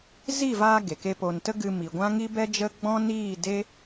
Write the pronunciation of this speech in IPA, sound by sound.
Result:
z i˦˨ v aː˧ ɡ e˨ k e˦ p o˧ n t ə˧ ɡ ɨ˧ m i˨ ɡʷ ã˦ ŋ i˦ b ɛ˦ d͡ʒ ə˦ ɡ͡b ɔ̃˦ n iː˦˨ d e˦

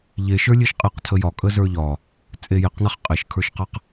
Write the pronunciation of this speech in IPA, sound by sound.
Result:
ʎ e ʃ ə˞ lʲ e ʃ qʼ e q tʰ ə j ɒ kʼ ə z ə˞ ʎ ɒ | t͡sʼ e j e q n a χ qʼ e ʃ kʰ ə˞ ʃ q a q

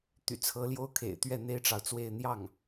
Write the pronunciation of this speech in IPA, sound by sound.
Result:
t̪ y̰˨˩ t͡sʰ ɤ˧˥ l j o˥ ʊ̯ kʰ ḛ˨˩ ɪ̯ t̪ ɥ ɛ˥˩ n̪ e˥ ɪ̯ ʈ͡ʂ ɑ˨ ʊ̯ t͡s w e˥˧ ɪ̯ n̪ j ɑ˥˩ ŋ

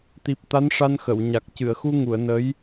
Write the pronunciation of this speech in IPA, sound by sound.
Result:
t̪ i˨˩ p̚ t̪ a˧˥ n ʂ a˧ n x ə˨˩˨ w ɲ a˨˩ k̚ c ɨ˨˩˨ ə̯ x u˧ ŋ u˨˩˨ ə̯ n ə˧˥ j

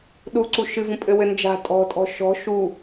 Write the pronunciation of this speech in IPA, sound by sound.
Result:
ɗ u ǀ u ʃ ɨ v ũ pʼ ɘ w ɘ n d͡ʒ a̤ tʼ ɔ̤ tʼ ɔ̤ ʃ ɔ̤ ʃ u

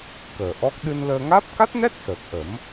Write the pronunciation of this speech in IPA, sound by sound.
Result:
k əː˨˩ ʔ ɔ˦˥ k̚ ɗ ɨ˧ n l əː˧ ŋ aː˦˥ p̚ k a˦˥ t̚ n ɛ˦˥ t̚ s əː˨˩ k̚ ʔ ə˨˩˦ m

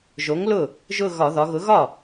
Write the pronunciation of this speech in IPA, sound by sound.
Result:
ʒ o˨˥ ŋ l ʊ˥˩ | ʒ ʊ˥˧ ɣ ɒ˧˩˧ ð ɒ˩˧ ɣ ʊ˨˥ ɣ ɒ˥˩

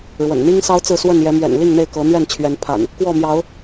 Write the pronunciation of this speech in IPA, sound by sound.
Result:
ɻ w ə̰˨˩ n n̪ i˦ ŋ s ɑ˦ ʊ̯ t͡s ɹ̩˥˨ s w ə˥˨ n j ɛ˨˦ m ɥ ɛ̰˨˩ n l i˥˨ ŋ n̪ e˥˨ ɪ̯ k ɤ˨˦ n̪ ɥ ɛ˥˨ n t͡ɕʰ ɥ ɛ˨˦ n pʰ a̰˨˩ n | k w ɔ˥˨ m j ɑ˨˦ ʊ̯

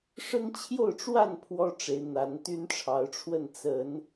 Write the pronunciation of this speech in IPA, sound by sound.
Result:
ʂ ə˦ n t͡ɕʰ j o˥˨ ʊ̯ ʈ͡ʂ w a˥˨ n pʰ w ɔ˦ ʈ͡ʂ e˨˦ ɪ̯ n̪ a˨˦ n t̪ y˦ n ʈ͡ʂʰ ɑ˨˦ ʊ̯ ʈ͡ʂʰ w ə˥˨ n t͡s ə˨˦ n

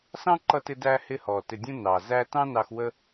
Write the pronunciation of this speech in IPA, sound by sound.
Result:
s ɑ̃˦ ǃ ʌ˧ t ɪ˧ d æː˧ h ɪ˦ h ɔː˨ t ɪ˨ dʲ ũ˧ n ɑ˨ z æ˦ t ɑ̃˦ n ɑ˧ x w ə˦

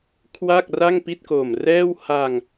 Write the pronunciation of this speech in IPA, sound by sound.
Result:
kʰ w a˥˩ k̚ r a˥˩ ŋ p i˥˩ t̚ k o˨˩ m r ɛː˥˩ w h a˧ ŋ

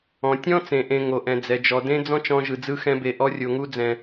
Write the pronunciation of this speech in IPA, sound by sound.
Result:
ɔ̃˨ tʲ ɔ̃˦ t͡s ẽ˨ ʔ ẽ˨ ŋ o˨ ʔ ɛ̃˨ d͡z ɛ˨ d͡ʒ ɔ˨ d ẽ˦ d͡z ɔ̃˦ t͡ʃ ɔ̃˧ ʒ ɯ˨ d͡z ɯ˧ x ɛ̃˧ b e˨ ʔ ɔ˧ rʲ o˨ ŋ u˧ d͡z ɛ̃˨

